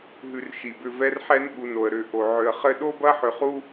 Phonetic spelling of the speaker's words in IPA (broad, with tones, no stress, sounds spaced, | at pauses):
ɦ ʉ˨ r ʃ i˩ b ʏ˨ v ɛ˦ r ħ ɛ˦ n ɠ u˨ n o˩ ə̯ ɾ ʏ˨ ʔ o˩ ʕ ʏ˨ ə̯ χ ɘ˦ ɗ o˥ b ɐ˦ ħ ʏ˨ χ u˦